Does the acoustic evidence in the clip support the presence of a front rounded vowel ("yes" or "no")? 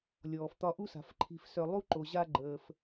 yes